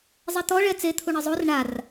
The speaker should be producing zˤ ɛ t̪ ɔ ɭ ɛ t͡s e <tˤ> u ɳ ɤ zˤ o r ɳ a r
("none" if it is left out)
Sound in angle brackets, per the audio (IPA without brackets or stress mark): t̪ʰ